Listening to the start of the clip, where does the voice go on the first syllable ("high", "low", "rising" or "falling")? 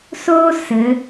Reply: high